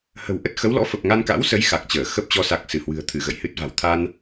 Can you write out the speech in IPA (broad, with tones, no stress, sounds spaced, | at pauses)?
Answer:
h ə̤˨˩ w ʔ ə˦˥ t̚ x ə˨˦ w l ɔ̰˧˥ f ə˨˩ p̚ ŋ a˧ n k a̰˧˥ w s ə˨˦ j x a˨˩ k̚ t͡ɕ əː˧˩ x ə˦˥ p̚ t͡ɕ ɔ˧ s a˨˩ k̚ s ɨ˧˩ h w ɨ̤˨˩ ə̯ t̪ʰ ɨ˧˩ ɣ ə̰˧˨ j h ɨ˦˥ t̚ v a̤˨˩ w t̪ʰ a˧ n